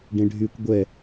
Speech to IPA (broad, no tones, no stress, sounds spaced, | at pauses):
ɖ ẽ ɖʱ y kʷ ɡʷ ɛ